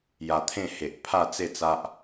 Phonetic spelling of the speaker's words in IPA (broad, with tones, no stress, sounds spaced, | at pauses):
j a˧ t̪ʰ ẽ˥˧ h e˨ ʔ pʰ a˥˧ t͡s e˥˧ t͡s a˦ ʔ